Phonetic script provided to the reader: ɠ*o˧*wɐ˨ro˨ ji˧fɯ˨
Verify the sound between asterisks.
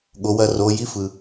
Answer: incorrect: o˨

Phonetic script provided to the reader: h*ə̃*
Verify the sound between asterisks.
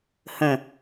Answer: correct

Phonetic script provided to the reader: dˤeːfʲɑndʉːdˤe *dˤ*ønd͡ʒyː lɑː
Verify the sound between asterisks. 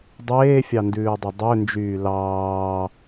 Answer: correct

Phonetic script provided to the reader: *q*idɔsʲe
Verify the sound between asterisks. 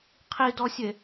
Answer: incorrect: qʰ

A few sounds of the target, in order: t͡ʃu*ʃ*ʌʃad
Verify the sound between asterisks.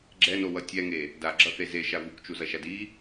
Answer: incorrect: z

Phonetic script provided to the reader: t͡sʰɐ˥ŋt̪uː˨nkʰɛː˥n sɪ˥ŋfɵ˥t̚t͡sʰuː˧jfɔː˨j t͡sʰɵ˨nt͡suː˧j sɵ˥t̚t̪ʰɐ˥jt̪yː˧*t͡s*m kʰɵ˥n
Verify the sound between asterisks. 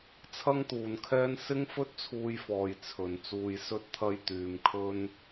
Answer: incorrect: none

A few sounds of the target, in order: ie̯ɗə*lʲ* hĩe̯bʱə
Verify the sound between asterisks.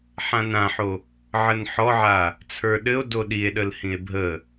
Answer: incorrect: l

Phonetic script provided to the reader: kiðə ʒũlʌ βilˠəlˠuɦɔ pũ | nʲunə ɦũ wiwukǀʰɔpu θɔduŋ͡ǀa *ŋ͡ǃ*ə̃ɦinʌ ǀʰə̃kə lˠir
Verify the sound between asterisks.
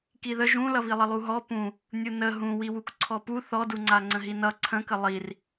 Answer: incorrect: ŋ͡ǀ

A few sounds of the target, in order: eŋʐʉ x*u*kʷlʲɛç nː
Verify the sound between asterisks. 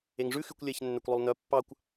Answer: incorrect: y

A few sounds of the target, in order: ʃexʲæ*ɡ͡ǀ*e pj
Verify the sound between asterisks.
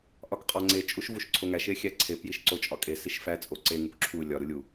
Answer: incorrect: ǀʰ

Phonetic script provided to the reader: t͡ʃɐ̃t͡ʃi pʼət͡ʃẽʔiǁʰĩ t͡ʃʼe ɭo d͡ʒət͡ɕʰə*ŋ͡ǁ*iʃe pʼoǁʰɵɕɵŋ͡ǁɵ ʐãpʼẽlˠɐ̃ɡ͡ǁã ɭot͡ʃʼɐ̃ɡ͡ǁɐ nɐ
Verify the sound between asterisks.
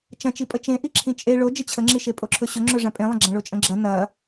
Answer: correct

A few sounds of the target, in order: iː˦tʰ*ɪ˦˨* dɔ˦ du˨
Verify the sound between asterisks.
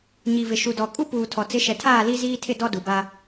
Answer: correct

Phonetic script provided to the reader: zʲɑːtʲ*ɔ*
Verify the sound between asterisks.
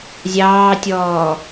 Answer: incorrect: ɔː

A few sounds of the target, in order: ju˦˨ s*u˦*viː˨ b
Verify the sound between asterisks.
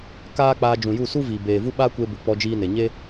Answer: correct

